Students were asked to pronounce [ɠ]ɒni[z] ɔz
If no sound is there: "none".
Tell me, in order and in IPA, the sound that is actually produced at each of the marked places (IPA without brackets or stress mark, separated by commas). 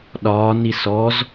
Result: ɗ, s